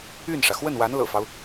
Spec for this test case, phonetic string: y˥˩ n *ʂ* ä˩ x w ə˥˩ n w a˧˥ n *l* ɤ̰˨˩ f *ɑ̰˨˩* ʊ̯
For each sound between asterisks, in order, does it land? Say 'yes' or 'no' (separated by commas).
yes, yes, no